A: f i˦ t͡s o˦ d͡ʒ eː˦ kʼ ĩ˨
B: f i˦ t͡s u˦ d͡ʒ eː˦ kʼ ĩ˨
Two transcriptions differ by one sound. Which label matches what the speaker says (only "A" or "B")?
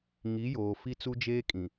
B